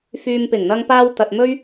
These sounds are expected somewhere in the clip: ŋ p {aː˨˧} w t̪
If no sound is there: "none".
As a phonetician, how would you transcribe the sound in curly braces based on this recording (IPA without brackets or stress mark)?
aː˧